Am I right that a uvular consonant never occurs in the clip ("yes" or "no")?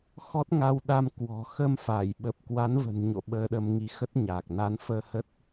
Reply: yes